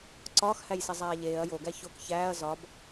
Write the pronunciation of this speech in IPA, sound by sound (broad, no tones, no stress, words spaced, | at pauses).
ǀɒːxhæjsizˤæː ʎeːɐ̯ joɡæ çok çæːɐ̯ zɒb